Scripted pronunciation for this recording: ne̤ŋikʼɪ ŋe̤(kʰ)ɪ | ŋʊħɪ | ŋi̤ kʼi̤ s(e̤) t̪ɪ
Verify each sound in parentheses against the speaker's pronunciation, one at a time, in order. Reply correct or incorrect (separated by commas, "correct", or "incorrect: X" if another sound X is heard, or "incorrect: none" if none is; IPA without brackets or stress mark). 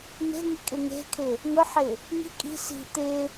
correct, incorrect: i̤